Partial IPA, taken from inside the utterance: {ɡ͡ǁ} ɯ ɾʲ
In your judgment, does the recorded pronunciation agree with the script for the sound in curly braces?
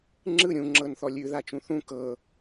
no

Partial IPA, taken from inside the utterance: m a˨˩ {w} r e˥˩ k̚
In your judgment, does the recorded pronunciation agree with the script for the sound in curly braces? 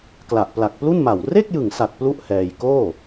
yes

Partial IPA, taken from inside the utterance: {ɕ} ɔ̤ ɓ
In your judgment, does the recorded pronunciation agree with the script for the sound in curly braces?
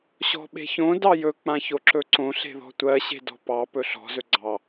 yes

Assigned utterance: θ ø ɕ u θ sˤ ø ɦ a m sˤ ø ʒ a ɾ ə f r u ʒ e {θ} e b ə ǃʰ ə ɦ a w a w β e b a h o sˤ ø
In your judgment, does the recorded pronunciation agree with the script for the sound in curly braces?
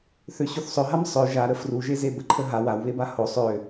no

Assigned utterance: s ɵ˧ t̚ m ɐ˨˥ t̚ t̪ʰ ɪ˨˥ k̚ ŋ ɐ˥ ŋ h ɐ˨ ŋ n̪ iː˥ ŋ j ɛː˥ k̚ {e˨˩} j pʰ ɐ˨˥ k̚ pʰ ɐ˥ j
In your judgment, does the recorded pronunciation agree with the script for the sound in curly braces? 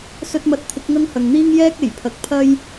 yes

